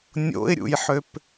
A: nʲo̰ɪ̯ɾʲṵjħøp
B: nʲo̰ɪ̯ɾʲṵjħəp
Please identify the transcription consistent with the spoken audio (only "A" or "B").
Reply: A